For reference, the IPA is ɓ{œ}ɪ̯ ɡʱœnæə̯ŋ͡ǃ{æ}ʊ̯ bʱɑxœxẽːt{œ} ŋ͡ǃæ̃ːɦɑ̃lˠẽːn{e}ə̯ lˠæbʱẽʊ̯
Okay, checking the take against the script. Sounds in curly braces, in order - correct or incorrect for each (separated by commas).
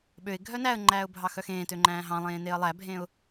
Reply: incorrect, incorrect, incorrect, correct